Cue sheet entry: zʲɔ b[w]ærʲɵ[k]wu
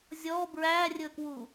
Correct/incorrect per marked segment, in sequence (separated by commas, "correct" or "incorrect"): incorrect, correct